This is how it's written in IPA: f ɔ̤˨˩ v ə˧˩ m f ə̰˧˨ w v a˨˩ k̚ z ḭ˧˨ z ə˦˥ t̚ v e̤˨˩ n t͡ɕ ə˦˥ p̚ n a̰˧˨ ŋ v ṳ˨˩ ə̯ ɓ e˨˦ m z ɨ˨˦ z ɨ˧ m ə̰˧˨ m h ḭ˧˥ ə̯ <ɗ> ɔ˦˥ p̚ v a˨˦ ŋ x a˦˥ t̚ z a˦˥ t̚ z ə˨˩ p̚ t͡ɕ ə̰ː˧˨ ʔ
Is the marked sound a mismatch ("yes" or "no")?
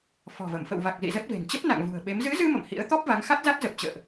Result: yes